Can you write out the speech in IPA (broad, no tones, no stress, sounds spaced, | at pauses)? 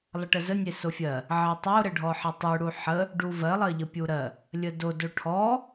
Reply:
lˠ ə ʈ ə z ə nʲ e s o fʲ ɜ | ʕ ɜ tˤ o ɾ ə ɖʱ ɔ ħ ə tˤ u ɽ u ħ ə | ɖ u v ɜ lˠ ɜ ʎ ə pʲ u ɾ ɜ | lʲ ə d o d o ʈʰ ɔ